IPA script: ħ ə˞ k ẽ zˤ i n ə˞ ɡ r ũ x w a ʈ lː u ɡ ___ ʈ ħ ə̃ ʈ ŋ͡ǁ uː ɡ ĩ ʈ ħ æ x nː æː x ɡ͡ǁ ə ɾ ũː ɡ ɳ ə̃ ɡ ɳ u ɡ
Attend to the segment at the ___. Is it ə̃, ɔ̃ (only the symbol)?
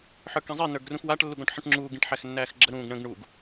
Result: ɔ̃